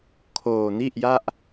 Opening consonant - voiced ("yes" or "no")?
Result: no